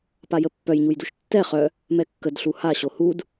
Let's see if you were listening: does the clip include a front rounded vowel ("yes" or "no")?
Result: yes